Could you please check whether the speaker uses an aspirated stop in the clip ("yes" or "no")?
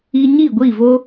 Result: no